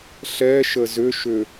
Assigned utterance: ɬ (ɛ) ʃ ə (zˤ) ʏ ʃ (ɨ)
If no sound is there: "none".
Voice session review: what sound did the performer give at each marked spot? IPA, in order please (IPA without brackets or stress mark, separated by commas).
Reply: ɛ, z, ʏ